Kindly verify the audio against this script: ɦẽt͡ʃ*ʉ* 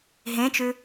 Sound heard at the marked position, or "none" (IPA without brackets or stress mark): ʉ